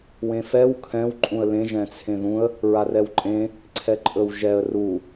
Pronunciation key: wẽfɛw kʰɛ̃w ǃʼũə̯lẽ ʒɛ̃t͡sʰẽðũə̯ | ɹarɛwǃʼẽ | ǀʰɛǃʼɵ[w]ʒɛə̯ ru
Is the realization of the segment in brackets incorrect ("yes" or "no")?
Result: no